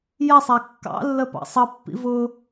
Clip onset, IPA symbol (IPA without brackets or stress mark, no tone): j